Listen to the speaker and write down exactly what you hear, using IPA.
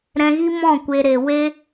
ɾ ɛ̃˧ ɣ i˦ m ɔ̃˦˨ kʷ e˧ ɾ e˨ w e˦

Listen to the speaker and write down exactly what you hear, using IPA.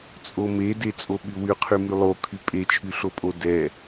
t͡sʼ o m e d e t͡sʼ o ɓ y w y qʰ y m y lˠ o kʰ y pʼ e t͡ʃʰ y ɬ o pʼ o d ɛ

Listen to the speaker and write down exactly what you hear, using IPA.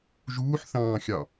ʒ uː ħ θ ɑ̃ː xʲ ɑ

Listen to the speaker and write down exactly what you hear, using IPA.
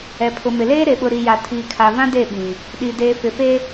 ɛ˨ pʰ ʊ˨ m ɪ˨ l eː˦ ɾ e˨ ɓ ʊ˨ ɾ i˨ j a˨ tʰ iː˨ kʰ a˨ v ã˦ d e˦˨ ɓ ĩ˨ | ɗ i˨ d eː˨ f ɪ˨ f e˦

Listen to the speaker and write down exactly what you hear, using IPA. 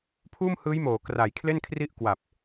pʰ uː˥˩ m h ɯː˦˥ j m oː˩˦ k r a˩˦ j kʰ l e˥˩ n kʰ r i˥˩ ʔ k w a˨˩ p̚

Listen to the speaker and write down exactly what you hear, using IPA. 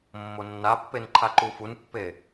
mː o nː a pː e n ǃʰ a ǃ u f u n pː e

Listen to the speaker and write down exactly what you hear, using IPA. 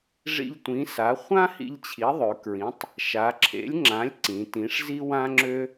ʐ ḭ˧ ʎ tʷ ĩ˩˥ s a˩˥ χʷ ã˥ h ḭ˧ ʎ t͡ɕʰ i˩˥ ðˤ ø˩˧ k ɹ ĩ˩˥ tˤ | ʃ a˩˧ ǁʰ ḛ˩˥ lʲ ŋ͡ǁ ã˩˥ lʲ ǀ ĩ˩˧ t ĩ˩˥ ʂ z i˥ w ã˥ ŋ͡ǁ ø˥

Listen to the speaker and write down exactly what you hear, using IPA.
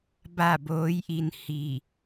b a˥˨ b oː˧˥ j ʔ i˧ n h i˧˩

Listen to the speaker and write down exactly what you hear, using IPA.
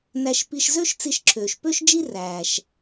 n æ˧ ʃ p i˧ ʃ z ø˥ ʃ t͡s i˧ ʃ ǁʰ øː˩ ʃ p ø˥ ʃ d͡ʒ i˥ r æː˩ ʃ

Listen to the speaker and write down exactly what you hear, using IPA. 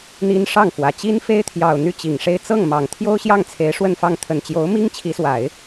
n̪ i˥ n ʂ ɑ˥˩ ŋ f w ä˨˩ t͡ɕ i˥ n f e˥ ɪ̯ t̪ʰ j ɑ˨˩ ʊ̯ n̪ y˥˩ t͡ɕ i˨˩ ŋ ʂ e˥˧ ɪ̯ t͡s ɤ˥˩ ŋ m ɑ˨˩ ŋ t̪ʰ j o˥ ʊ̯ ɕ j ɑ˥˩ ŋ t͡sʰ e˧˥ ɪ̯ ʂ w ə˥˧ n f ɑ˥˩ ŋ t̪ʰ ə˨˩ n t͡ɕ j o˧˥ ʊ̯ m i˥ ŋ t͡ɕʰ i˧˥ s w a˨˩˦ ɪ̯

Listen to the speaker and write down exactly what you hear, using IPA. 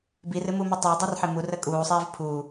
b i r ɨ m u m ɨ tˤ e dˤ e r ħ e m u r ə kʼ uː sˤ iː v pʰ uː

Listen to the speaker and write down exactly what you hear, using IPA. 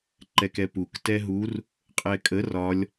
ǃ ɛ k ɛ p u k t ɛ ɦ u r | qʼ ɛ kʼ ə r ɒ lʲ

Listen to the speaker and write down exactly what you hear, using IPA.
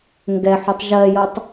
ŋ ɡ ɛ ħ u tˤ ʒ ɜ j ɤ tˤ

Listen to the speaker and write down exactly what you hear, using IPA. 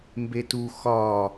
m b e t u x ɒ

